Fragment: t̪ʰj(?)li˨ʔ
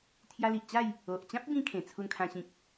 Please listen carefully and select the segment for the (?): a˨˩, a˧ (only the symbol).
a˧